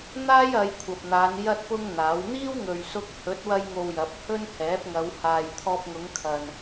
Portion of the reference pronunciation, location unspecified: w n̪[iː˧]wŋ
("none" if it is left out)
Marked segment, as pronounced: iː˥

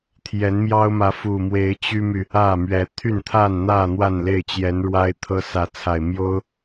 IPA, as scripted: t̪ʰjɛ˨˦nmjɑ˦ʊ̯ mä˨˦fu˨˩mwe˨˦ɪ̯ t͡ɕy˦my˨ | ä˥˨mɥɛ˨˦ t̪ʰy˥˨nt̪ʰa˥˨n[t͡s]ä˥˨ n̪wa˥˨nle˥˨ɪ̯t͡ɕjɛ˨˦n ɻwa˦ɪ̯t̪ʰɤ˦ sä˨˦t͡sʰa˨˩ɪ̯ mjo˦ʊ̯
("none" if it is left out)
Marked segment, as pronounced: n̪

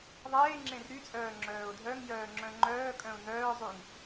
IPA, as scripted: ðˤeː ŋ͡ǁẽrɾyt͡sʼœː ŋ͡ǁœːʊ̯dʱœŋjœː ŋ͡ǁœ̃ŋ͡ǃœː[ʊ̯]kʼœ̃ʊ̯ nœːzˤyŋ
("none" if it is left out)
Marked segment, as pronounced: none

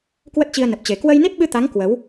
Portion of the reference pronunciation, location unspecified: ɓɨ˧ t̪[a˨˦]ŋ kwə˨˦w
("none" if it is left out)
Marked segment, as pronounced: a˨˦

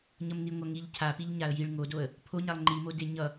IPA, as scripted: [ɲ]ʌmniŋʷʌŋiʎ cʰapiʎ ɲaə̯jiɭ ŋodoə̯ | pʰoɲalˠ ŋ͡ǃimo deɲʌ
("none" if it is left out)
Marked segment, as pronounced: ɲ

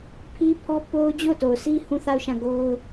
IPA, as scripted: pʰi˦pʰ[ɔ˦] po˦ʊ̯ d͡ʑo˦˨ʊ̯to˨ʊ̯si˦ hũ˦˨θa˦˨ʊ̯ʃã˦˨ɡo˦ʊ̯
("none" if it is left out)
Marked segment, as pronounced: ɔ˦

